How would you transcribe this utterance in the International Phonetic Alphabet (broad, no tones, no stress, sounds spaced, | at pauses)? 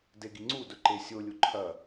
d e ɡ i ŋ͡ǀ u d ɵ ǃ e sʲ o lʲ u ǃʰ ɐ